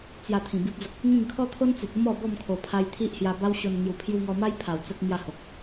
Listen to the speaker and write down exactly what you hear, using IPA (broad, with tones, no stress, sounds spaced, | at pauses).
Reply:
t͡s j a˧ t̪ʰ ĩ˨˩ b i˦ p̚ d͡z ə˦ k̚ | ŋ ĩ˥˧ ŋ kʰ ɔ˦ t̪ʰ o˦ n t͡s e˨ t̚ ə˦ m ɔ˥˧ b ɔ˥˧ m kʰ o˨˩ pʰ a˧ j t̪ʰ i˦ ʔ h j a˧ b a˦ w ɕ o˧ n ŋ j u˨˩ pʰ j u˧ ŋ ɔ˧ m a˦ j pʰ a˨˩ w t͡s ə˦ k̚ m j a˥˧ h o˨ k̚